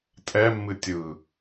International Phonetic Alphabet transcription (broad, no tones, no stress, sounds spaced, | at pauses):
tʼ ɛ mː ɨ tʲ ɯ